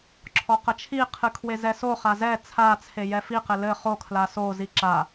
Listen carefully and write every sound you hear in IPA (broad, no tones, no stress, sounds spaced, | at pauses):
ǁʰ ɔ q ɐ t͡ʃʰ i qʰ ɨ kʰ w e z ɛ s o χ a z ɛ t͡sʰ a t͡sʰ e j ɛ f i q ɘ l ɘ χ o kʰ l a s o z i ǁ a